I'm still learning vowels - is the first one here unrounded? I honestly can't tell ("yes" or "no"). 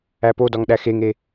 yes